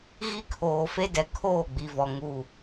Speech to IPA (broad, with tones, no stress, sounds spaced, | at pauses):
ɣ i˦ kʰ oː˨ f e˦ d ɛ˨ kʰ oː˦˨ ɡ͡b i˨ v ɔ˨ ŋ u˦˨